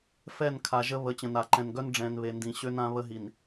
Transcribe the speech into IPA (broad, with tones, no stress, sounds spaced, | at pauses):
f ɛ˦˨ n kʰ a˨ ʒ ə˦ β ə˨˦ t͡ɕ ə̃˨ n a˨ ǃ ɛ̃˨ n ɡ œ˦ n ɖ͡ʐ ɛ̃˨ n β e˨ n d ĩ˨ ɕ ø˦ n ã˦ β ə˦ ɦ i˨ n